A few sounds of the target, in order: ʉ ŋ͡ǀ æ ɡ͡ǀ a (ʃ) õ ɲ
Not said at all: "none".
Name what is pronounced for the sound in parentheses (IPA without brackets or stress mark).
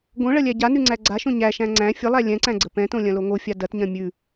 ʃ